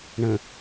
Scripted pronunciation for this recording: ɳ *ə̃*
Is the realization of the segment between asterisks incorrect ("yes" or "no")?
no